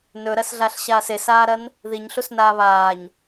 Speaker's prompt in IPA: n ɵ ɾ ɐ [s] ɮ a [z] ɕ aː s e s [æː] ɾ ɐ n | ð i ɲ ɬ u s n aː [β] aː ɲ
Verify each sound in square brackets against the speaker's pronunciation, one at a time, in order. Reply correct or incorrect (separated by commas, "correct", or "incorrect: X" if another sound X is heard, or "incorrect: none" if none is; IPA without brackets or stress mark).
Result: correct, incorrect: ɬ, incorrect: aː, correct